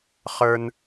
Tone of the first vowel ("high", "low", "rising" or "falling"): high